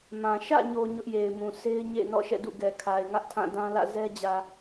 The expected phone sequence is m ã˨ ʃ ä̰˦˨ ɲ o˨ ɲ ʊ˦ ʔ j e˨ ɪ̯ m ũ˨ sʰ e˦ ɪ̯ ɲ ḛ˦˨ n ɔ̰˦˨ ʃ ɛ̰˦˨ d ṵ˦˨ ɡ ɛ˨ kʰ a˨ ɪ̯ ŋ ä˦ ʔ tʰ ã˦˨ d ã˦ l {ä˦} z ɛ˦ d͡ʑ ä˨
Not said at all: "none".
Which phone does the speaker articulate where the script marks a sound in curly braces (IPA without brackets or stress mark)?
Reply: ä̰˦˨